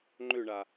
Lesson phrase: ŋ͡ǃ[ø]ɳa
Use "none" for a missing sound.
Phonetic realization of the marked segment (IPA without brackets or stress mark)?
ø